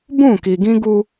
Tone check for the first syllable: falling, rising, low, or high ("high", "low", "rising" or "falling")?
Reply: falling